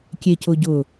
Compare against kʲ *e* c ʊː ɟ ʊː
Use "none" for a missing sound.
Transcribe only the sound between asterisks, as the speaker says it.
e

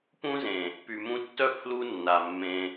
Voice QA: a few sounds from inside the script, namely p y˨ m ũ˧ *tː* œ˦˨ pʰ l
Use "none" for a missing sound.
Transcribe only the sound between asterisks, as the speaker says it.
tː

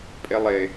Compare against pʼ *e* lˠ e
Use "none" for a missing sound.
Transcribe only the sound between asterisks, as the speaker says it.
e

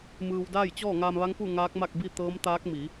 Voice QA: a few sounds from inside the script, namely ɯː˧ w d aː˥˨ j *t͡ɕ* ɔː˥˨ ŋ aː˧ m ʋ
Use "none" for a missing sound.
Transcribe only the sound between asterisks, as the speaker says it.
t͡ɕ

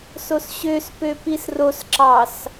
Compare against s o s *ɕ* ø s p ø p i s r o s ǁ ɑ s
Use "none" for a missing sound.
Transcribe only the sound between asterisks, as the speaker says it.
ɕ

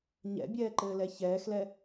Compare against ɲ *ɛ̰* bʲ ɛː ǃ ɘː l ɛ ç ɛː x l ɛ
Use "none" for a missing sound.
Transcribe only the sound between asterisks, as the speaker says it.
ɛ̰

